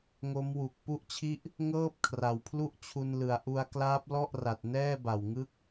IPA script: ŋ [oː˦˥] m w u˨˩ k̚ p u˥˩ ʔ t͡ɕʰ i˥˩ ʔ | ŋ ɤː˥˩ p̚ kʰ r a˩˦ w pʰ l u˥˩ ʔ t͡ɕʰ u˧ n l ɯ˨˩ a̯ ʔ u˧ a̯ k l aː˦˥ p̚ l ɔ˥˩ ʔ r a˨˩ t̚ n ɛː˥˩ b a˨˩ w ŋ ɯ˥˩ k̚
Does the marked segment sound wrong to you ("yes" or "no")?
yes